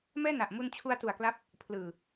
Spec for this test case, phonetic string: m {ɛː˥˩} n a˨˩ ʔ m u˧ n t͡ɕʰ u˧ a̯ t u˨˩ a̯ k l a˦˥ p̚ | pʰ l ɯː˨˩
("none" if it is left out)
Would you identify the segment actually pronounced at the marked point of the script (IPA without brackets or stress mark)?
ɛː˥˩